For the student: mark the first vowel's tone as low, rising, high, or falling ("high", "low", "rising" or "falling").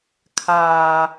low